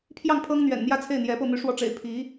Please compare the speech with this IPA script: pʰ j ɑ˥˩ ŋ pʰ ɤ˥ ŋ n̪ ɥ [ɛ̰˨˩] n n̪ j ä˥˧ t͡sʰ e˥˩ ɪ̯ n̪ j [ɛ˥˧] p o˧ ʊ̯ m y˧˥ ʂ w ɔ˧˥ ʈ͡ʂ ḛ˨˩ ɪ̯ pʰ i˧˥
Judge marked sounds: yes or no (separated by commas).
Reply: yes, no